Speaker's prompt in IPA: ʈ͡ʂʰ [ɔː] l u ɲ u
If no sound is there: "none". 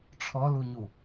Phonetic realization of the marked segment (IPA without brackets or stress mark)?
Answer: ɔ